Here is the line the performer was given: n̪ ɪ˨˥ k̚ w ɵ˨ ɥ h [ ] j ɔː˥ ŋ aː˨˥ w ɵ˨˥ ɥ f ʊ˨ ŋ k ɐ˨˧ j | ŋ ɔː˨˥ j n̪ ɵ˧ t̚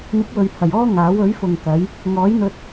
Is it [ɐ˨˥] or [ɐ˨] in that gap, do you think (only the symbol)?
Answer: ɐ˨